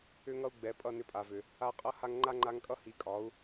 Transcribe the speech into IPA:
ʏ˦ŋʌ˦u̯ɡ͡bɛ˨˦ pʼʌ˦˨nʏ˧pʼa˨vʏ˨ | a˧qʼʌ˦ ha˧ŋŋ͡ǃa˦ŋ͡ǃa˧ŋkʼʌ˦ hi˨˦kʼɒ˨˦u̯

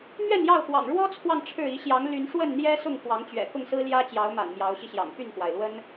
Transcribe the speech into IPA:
mɥɛ˥˨njɑ˥˨ʊ̯xwɑ̰˨˩ŋ ɻwɔ˦t͡sʰwɑ˨ŋ ʈ͡ʂʰɻ̩˥˨ i˨˦ɕjɑ˨˦ŋ ly˨˦nʂwə˥˨nn̪jɛ˦ sʊ˥˨ŋxwɑ˨˦ŋt͡ɕɥɛ̰˨˩ kʊ˥˨ŋsɹ̩˦ljä˦t͡ɕjɑ˨˦ʊ̯ ma̰˨˩nmjɑ˨˦ʊ̯ɕi˧ɕjɑ̰˨˩ŋ py˥˨nxwa˩ɪ̯ lwə˦n

